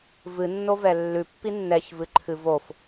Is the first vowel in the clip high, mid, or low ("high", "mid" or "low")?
high